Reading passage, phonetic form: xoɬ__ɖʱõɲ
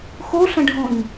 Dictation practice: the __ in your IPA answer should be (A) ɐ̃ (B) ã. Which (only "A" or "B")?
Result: A